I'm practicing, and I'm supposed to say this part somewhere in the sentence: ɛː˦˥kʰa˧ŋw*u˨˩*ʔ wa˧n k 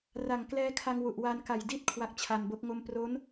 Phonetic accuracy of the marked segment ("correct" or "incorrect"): correct